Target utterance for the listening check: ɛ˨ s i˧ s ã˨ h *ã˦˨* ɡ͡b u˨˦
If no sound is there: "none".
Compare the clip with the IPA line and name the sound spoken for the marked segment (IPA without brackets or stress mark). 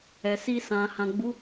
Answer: ã˨